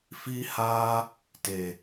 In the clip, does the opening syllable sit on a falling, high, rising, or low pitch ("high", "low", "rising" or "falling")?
high